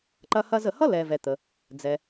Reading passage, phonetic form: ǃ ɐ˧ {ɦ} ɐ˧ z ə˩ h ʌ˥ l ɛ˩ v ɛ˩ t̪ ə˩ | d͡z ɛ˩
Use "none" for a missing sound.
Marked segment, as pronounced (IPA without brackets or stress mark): h